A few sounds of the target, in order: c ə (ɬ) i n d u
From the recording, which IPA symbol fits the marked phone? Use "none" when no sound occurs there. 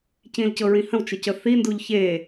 θ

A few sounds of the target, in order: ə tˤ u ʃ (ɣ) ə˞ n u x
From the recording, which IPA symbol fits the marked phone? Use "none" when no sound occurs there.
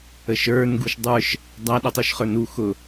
χ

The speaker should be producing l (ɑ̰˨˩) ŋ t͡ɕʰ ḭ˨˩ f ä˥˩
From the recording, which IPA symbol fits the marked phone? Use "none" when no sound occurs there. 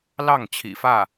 ɑ˥˩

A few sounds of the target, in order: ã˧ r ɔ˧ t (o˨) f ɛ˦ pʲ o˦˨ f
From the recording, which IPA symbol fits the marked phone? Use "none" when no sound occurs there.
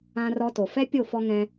o˨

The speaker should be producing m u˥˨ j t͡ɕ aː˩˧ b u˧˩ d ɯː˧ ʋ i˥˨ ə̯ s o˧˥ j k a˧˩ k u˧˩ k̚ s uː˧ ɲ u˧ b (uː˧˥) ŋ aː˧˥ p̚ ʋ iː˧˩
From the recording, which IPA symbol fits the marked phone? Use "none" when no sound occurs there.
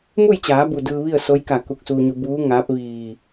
uː˧˥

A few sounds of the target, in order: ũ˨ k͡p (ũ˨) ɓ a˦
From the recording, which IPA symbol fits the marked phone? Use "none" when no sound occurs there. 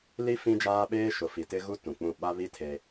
ũ˦˨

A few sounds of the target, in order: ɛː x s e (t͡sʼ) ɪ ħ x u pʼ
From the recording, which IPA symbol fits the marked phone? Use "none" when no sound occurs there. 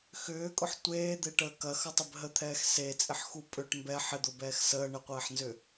t͡sʼ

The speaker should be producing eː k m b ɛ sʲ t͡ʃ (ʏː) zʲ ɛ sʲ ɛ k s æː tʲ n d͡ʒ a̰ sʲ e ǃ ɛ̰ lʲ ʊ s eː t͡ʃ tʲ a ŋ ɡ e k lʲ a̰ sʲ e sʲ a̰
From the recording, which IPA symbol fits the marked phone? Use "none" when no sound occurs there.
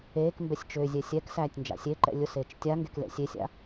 ʏː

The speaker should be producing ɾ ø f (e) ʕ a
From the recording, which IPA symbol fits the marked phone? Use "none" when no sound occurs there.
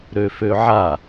ø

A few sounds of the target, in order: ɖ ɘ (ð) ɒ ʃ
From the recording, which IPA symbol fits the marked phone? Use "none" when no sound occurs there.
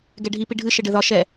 ð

